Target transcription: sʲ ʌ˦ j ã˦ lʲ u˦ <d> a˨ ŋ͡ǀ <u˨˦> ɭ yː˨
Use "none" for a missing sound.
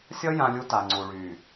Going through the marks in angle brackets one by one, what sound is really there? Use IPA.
t, u˨

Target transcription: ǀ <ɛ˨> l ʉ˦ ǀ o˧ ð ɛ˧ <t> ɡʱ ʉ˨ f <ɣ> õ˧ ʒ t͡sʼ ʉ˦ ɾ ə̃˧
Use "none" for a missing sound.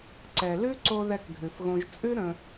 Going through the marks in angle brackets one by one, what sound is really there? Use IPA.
ɛ˨, k, ɣ

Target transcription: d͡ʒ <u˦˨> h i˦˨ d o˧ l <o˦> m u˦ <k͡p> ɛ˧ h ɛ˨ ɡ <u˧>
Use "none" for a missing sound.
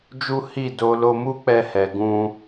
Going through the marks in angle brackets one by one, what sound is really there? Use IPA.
u˦, o˧, k͡p, ũ˧

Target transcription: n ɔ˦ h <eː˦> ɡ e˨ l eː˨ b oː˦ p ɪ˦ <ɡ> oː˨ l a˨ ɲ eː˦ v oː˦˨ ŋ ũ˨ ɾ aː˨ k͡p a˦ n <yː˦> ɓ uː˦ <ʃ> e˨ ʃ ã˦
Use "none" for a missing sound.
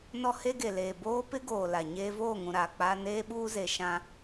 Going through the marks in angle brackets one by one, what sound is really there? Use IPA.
e˦, ɡ, eː˦, z

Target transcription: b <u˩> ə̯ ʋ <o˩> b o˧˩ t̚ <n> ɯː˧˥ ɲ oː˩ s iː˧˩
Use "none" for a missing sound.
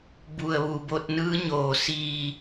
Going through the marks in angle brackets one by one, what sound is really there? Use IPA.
u˩, u˩, n

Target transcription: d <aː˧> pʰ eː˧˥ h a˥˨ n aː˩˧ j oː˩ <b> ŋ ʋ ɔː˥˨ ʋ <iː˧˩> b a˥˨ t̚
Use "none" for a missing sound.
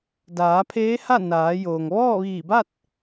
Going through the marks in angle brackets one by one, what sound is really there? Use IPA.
aː˩˧, none, iː˧˩

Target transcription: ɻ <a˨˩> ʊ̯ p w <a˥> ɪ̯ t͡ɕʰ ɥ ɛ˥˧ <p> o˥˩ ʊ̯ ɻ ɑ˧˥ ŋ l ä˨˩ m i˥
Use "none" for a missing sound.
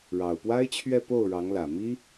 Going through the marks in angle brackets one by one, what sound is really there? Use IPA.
ɑ˨˩, a˥, p

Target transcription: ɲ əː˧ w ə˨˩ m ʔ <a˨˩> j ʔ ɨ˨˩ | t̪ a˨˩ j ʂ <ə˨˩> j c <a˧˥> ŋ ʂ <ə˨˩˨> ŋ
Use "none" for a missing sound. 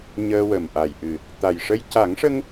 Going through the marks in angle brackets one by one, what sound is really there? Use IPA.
a˨˩, ə˧, a˨˩˦, ə˧

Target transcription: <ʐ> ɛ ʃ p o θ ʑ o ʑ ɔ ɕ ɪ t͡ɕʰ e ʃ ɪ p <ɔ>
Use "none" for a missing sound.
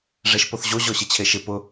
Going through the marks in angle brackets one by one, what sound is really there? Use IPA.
ʐ, ʊ

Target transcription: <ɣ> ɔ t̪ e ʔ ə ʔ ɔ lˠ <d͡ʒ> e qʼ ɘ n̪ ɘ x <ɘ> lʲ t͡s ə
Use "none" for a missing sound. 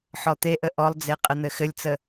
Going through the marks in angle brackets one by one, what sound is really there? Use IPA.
ħ, d͡z, ɘ

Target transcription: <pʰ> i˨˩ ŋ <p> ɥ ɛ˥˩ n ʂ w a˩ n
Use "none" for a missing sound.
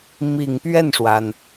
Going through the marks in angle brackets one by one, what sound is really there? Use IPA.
m, p

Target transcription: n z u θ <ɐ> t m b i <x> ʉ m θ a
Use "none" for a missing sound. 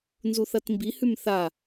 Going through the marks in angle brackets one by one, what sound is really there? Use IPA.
ɐ, h

